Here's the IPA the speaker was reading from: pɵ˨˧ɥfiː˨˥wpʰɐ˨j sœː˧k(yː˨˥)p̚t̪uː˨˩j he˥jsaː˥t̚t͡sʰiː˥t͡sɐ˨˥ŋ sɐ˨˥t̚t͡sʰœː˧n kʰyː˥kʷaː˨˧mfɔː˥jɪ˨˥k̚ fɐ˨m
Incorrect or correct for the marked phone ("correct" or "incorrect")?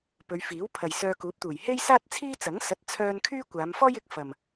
incorrect